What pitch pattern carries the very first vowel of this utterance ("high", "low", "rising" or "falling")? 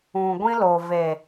low